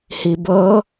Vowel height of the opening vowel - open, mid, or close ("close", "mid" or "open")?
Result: close